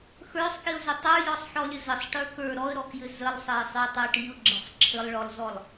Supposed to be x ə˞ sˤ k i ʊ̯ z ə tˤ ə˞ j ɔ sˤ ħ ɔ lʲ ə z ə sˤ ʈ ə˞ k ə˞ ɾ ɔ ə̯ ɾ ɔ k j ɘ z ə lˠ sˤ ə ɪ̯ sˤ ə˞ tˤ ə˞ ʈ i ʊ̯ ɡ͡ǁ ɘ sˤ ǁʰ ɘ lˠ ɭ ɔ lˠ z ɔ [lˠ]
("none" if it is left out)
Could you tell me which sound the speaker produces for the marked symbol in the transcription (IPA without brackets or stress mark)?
lˠ